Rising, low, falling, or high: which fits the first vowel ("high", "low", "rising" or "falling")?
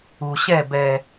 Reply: low